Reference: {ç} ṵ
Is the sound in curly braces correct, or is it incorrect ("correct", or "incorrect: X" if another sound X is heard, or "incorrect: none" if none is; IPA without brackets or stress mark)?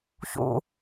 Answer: correct